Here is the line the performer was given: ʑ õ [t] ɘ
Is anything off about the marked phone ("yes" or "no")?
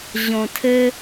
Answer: yes